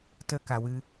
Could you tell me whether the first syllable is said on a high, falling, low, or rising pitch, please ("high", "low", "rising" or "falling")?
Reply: high